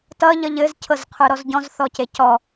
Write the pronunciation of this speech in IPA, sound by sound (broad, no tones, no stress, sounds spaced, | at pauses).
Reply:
t ʌ ʎ ʌ ʎ ɘ z cʰ ɤ z qʰ ə˞ ɾ ɔ z ɟ ɔ̃ z θ ɔ c e c ɔ